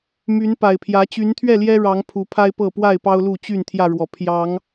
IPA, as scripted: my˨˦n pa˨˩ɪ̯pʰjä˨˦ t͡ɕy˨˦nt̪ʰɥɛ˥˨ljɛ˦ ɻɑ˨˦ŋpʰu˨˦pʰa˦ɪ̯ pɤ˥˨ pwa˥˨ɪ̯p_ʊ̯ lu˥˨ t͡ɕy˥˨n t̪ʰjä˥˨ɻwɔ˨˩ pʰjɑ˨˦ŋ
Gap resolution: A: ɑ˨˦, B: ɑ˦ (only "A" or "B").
B